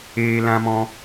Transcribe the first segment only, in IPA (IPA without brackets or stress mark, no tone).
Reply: eː